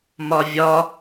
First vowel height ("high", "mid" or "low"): low